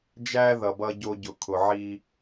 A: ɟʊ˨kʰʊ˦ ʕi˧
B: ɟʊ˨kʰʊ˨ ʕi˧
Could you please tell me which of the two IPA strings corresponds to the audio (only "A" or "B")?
B